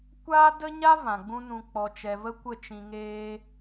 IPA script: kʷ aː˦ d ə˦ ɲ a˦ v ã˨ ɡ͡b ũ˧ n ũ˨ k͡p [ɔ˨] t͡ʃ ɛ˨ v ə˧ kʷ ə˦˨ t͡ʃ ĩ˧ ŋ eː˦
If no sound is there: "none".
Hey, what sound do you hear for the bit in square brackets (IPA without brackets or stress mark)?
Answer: ɔ˨